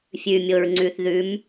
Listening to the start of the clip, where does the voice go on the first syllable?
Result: low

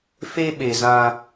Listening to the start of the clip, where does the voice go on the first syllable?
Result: high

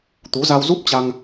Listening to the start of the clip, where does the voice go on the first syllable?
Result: rising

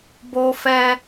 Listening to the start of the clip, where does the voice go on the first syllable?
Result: high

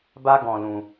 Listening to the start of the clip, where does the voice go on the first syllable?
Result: high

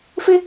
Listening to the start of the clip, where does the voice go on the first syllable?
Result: high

